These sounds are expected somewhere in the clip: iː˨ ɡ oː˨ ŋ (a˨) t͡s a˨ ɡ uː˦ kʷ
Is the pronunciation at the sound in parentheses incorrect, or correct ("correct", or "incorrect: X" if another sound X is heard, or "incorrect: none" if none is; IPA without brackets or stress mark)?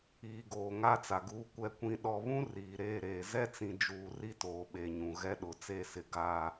incorrect: a˦